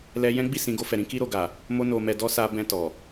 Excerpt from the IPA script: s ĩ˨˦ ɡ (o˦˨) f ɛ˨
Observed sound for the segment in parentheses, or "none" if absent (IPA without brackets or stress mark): o˧